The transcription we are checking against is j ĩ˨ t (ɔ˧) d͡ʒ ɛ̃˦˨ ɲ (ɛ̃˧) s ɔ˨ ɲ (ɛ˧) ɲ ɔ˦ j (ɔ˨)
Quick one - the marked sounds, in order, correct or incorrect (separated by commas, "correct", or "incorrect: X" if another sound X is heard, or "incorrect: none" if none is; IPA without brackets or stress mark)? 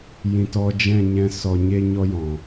correct, correct, incorrect: e˧, incorrect: ɔ̃˨